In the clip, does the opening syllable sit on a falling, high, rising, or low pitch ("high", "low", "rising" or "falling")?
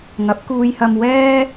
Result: rising